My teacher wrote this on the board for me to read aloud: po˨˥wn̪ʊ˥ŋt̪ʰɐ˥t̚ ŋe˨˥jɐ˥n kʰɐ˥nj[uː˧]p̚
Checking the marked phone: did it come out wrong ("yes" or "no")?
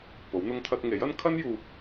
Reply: yes